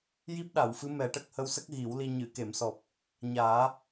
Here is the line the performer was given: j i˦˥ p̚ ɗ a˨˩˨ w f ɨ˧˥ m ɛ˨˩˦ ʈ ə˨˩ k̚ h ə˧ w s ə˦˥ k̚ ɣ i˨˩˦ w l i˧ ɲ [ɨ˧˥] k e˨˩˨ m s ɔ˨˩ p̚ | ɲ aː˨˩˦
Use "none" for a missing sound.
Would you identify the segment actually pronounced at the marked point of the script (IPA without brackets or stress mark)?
ɨ˨˩˨